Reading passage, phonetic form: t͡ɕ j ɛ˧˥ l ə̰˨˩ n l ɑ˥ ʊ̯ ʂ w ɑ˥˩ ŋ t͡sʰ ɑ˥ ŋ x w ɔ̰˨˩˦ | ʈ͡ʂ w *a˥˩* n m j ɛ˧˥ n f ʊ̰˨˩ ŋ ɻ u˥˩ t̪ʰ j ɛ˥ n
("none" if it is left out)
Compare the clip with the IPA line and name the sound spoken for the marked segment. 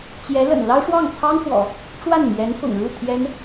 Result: a˥˩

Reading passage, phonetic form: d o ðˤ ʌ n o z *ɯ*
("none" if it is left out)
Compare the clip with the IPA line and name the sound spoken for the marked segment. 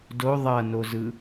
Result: ɯ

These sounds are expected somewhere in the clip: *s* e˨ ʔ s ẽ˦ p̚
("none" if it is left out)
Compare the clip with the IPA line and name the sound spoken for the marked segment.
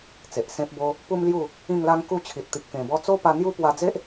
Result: t͡s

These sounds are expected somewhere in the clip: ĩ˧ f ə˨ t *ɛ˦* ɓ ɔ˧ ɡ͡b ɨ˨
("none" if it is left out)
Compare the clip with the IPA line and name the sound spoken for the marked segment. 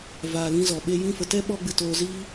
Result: ɛ˦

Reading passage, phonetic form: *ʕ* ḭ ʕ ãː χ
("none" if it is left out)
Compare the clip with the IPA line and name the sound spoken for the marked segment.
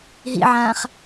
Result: ɦ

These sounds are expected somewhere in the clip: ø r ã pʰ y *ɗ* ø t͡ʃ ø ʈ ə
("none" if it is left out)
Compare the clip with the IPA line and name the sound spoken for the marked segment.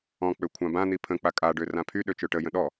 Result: ɗ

